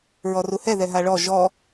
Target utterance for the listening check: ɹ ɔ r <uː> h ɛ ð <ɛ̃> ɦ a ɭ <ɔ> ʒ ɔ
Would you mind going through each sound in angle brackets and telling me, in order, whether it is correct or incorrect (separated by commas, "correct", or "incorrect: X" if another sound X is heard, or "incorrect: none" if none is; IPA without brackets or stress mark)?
incorrect: u, incorrect: ɛ, correct